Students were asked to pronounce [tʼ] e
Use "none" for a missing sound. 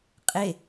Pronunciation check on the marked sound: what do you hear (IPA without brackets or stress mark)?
qʼ